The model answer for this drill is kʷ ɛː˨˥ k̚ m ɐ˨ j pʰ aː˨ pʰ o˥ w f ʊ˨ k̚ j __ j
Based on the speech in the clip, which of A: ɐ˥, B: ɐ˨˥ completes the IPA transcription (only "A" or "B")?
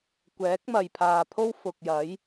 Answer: B